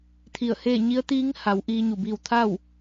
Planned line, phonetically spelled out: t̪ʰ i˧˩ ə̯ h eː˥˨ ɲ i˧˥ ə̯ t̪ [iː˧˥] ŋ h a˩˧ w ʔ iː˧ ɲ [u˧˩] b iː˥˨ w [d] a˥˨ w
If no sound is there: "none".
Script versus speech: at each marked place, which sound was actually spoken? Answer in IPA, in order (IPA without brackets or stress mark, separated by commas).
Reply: iː˧˥, u˧˩, t̪ʰ